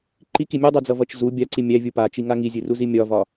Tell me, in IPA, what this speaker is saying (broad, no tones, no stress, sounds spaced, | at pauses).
ǃ i k i mʲ u dˤ u d͡z ʌ v ʌ t͡ʃ z u bʲ a ǀ i mʲ æ vʲ u p a t͡ʃ i ŋ a ŋ i zʲ ɨ r u z i mʲ ɒ v ɒ